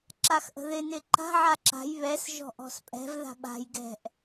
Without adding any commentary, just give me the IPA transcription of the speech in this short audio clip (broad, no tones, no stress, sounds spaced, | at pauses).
ǁ a x ʔ ə̤ ð ɪ n ɪ ǃ a̤ ʕ a ǁ a̤ j β ɛ s ʒ ɔ̤ ʔ ɔ̤ s pʼ ɛ̤ v ð a̤ ɓ a̤ j ɡ ɛ̤ ʔ